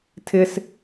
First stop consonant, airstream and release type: aspirated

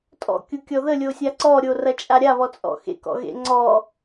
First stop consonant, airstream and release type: ejective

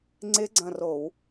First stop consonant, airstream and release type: click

